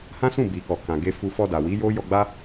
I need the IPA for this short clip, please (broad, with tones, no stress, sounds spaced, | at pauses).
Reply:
h ã˦ s ũ˦˨ b i˨ k ɔ˨ k ã˨ ɡ e˧ f u˧ f ɔ˧ d a˨ w i˨˦ j o˦ j ɔ˧ ɡ͡b a˦